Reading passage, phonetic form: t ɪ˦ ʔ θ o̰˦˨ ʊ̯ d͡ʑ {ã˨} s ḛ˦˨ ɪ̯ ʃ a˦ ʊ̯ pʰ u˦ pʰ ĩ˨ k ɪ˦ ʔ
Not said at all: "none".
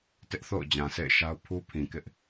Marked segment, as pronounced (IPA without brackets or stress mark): ã˨